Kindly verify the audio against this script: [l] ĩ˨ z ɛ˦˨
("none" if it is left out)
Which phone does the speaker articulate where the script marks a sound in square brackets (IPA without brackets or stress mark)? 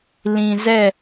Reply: l